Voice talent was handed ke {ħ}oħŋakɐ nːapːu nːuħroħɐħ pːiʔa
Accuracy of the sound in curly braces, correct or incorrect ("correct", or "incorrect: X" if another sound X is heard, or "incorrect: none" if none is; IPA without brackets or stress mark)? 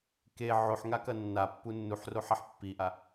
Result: incorrect: ʕ